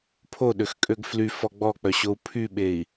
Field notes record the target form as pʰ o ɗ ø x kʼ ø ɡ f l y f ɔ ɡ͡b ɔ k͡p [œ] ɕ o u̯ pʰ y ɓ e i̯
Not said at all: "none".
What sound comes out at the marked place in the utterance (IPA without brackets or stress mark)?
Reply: œ